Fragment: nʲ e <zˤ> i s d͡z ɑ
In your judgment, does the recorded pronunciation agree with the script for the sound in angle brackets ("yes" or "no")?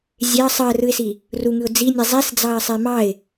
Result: yes